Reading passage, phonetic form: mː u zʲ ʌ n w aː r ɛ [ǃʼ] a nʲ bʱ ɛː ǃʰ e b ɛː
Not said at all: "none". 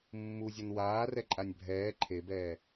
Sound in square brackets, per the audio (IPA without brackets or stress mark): ǃʼ